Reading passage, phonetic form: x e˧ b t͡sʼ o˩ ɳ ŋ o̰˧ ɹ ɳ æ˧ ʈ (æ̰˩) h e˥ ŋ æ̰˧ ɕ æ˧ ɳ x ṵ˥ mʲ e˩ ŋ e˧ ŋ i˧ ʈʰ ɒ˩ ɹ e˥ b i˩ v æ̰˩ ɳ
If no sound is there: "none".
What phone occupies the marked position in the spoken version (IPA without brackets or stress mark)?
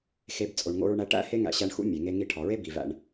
æ̰˥